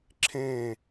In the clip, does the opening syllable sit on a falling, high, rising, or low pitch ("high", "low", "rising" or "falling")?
falling